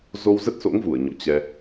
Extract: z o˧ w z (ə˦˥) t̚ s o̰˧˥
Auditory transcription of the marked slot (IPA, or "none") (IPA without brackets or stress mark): ə˦˥